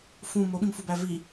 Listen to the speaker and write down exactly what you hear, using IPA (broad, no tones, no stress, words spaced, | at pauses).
fũ moɓĩmfubæ vi